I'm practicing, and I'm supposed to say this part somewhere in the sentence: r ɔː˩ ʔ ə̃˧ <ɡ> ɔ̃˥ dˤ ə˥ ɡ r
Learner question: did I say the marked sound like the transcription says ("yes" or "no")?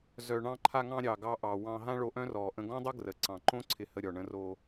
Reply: yes